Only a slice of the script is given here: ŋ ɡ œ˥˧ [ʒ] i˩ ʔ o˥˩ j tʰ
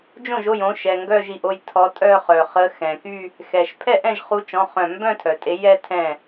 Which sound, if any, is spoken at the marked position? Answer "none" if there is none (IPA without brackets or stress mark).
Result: ʒ